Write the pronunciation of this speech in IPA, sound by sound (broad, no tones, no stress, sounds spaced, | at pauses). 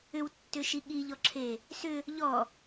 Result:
ʏ w tː ʏ ʃ i ɠ i ʎ ɔ ǁʰ e | s ʏ | ʎ ɔ